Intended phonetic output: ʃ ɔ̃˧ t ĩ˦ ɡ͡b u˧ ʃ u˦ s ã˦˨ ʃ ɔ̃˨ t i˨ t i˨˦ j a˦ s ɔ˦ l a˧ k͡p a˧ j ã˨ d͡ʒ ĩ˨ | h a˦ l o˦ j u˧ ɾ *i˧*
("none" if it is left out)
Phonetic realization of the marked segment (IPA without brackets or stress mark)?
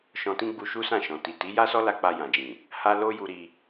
i˧